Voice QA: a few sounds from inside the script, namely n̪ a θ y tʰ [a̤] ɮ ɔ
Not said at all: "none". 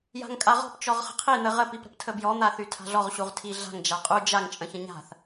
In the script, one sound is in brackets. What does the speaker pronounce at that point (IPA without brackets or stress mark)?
a̤